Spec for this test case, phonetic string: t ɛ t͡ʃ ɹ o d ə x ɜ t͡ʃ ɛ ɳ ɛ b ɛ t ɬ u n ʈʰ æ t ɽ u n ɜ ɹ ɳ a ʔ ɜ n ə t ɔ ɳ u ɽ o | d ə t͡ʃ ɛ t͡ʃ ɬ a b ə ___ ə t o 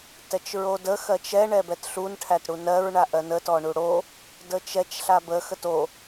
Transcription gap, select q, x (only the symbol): x